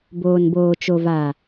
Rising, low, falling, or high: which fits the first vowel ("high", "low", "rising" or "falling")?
low